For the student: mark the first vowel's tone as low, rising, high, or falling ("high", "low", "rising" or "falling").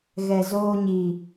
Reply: low